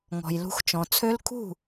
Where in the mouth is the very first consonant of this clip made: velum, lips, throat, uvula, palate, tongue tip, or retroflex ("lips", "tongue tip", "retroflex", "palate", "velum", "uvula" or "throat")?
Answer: velum